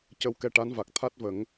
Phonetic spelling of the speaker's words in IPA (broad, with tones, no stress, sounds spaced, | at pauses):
c ə˧ w k ɛ˧ ʈ a˧˥ n v a˨˩ k̚ t̪ʰ a˦˥ t̚ v ə˨˩˦ ŋ